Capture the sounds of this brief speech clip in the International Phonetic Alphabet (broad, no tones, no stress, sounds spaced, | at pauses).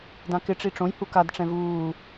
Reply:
d ã k ɪ ʈ͡ʂ i ʈ͡ʂ õ j h u k a d ʈ͡ʂ ɛ̃ v uː